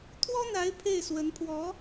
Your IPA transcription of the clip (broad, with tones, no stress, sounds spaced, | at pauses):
t̪ʰ w ɔ˥ n̪ a˧˥ ɪ̯ pʰ e˥˩ ɪ̯ s w ə˧˥ n pʰ w ɔ˧˥